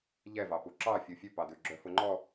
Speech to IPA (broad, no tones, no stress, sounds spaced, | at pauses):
ʎ ɛ v ɑ p u ǁ ɑ fʲ u fʲ ʉ p ɑ d ʉ ɡ͡ǁ œ f ʊ ŋ͡ǃ ɔ